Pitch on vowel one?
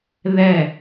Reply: falling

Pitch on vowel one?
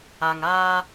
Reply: low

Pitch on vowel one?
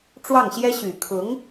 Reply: falling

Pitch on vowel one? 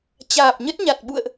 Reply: low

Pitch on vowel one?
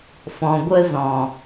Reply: low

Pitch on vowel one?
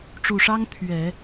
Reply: low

